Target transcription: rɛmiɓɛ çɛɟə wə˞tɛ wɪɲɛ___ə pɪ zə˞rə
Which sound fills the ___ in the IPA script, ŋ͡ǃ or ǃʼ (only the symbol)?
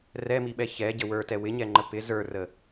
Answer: ŋ͡ǃ